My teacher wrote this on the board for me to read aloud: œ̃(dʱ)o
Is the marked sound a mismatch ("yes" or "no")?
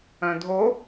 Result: no